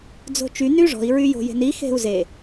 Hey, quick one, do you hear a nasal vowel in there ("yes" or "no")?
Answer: no